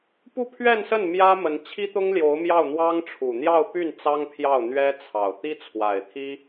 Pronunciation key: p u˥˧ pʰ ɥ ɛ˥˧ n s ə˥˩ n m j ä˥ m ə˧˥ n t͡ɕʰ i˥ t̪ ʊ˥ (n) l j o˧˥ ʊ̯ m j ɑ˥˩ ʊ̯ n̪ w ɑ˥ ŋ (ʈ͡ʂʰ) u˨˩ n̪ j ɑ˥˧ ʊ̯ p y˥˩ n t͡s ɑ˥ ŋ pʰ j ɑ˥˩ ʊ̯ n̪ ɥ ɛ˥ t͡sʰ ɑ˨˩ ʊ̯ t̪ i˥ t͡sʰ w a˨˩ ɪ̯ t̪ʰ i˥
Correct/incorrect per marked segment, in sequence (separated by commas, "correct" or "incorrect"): incorrect, correct